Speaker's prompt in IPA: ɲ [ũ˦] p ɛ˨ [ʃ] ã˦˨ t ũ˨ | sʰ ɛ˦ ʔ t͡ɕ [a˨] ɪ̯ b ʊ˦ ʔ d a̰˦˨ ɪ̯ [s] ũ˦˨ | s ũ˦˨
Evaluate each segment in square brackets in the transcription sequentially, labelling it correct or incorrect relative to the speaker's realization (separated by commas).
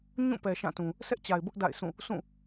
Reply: incorrect, correct, correct, correct